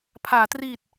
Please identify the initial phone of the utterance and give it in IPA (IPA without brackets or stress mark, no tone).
pʰ